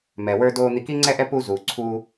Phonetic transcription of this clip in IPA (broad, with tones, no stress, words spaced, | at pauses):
mɛ˩wə˞˧doː˧ n̪i˧ki˥ŋ͡ǀɛ˥ʔɛ˥ pu˧zuː˩ǀʰuː˧